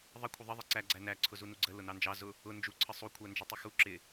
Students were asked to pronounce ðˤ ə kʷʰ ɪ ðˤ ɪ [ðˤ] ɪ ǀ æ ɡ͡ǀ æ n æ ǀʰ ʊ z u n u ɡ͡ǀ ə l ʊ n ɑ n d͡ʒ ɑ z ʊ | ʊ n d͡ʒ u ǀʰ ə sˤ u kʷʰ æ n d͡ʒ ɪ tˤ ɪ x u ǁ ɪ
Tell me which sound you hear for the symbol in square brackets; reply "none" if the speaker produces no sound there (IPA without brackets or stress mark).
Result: ðˤ